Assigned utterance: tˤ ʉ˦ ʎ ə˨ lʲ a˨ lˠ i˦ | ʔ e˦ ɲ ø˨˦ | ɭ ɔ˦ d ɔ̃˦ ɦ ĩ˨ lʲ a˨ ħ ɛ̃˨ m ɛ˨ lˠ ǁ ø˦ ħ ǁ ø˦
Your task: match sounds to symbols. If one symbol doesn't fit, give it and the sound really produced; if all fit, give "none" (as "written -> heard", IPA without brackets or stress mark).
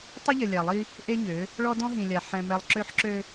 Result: ʉ˦ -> ə˦